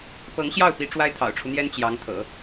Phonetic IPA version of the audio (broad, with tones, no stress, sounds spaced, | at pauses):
p ɤ˧˥ ŋ ɕ j ɑ˥˩ ʊ̯ p i˧˥ ʈ͡ʂ w a˥ ɪ̯ t̪ʰ ɑ̰˨˩ ʊ̯ ʈ͡ʂʰ u˦ n̪ j ɛ˥ n t͡ɕ j ɑ˧˥ ŋ t̪ʰ ɤ̰˨˩˦